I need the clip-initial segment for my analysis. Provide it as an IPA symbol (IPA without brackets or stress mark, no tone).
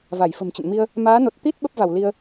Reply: v